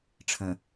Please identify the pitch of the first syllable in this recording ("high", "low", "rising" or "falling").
low